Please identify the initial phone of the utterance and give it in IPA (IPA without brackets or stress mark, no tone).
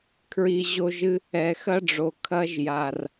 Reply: kʰ